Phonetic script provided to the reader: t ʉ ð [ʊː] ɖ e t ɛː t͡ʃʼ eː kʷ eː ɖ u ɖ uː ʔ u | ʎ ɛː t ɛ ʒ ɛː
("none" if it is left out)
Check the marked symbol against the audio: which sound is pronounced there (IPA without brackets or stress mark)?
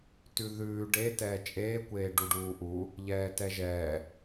ʉː